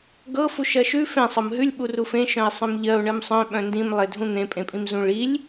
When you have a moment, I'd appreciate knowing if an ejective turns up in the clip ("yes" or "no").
yes